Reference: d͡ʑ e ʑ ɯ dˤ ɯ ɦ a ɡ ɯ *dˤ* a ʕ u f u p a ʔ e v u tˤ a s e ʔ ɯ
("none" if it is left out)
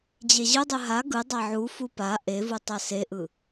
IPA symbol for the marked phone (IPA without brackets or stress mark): dˤ